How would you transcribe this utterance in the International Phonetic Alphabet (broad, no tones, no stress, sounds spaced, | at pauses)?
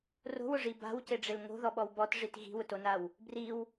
r o̤ w ʊ ʐ i b a̤ w c e ɖ͡ʐ ɪ l ŋ o̤ ð ɔ ɓ ɔ w b ɔ t ʐ i t ɣ i̤ w ʊ t o n a w | b r i w